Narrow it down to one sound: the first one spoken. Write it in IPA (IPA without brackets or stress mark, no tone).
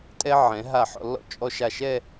tʼ